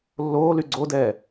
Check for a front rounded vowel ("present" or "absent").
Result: present